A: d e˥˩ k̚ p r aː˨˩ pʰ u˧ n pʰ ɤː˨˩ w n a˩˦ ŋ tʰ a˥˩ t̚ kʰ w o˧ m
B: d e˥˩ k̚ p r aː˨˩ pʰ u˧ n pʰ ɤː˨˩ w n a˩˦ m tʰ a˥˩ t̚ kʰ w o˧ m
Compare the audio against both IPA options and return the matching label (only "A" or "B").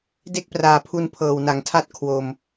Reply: A